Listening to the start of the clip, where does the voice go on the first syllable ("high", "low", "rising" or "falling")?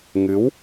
rising